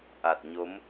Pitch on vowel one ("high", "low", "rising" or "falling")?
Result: low